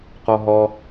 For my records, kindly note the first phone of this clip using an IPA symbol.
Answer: q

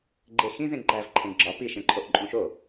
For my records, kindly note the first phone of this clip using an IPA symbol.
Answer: ɡ͡ǃ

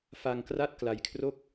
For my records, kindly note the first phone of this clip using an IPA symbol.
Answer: f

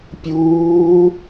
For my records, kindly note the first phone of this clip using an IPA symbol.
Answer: pʲ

